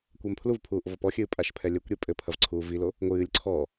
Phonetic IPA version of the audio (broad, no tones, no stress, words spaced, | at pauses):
kʷɐmpʰluvpʰuːʔ vɔpɔxʲɨː pʼaʃpʰɛlʲɘkʷɾʲe pʼɘ pʰɐvǀʰuːvilo | ŋʷɨːlʲ ǀʰɔ